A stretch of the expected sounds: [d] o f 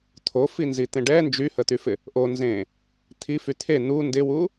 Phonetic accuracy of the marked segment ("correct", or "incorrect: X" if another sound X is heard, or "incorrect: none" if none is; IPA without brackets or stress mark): incorrect: t̪ʰ